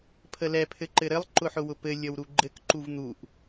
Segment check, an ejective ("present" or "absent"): absent